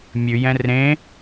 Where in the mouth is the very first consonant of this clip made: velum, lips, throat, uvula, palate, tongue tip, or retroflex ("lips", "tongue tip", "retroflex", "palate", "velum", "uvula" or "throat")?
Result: lips